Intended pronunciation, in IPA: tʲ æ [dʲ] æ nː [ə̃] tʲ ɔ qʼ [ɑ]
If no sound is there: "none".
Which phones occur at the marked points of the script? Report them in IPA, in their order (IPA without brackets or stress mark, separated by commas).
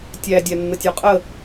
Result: dʲ, ə, ə